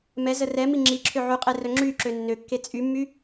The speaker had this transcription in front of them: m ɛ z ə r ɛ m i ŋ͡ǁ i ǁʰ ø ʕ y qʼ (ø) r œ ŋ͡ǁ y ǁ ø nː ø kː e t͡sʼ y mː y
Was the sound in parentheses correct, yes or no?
no